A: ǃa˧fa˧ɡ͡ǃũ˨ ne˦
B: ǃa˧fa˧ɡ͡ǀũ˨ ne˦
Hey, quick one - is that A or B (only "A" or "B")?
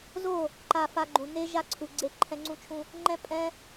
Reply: A